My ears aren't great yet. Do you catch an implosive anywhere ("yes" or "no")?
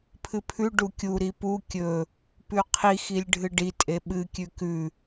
yes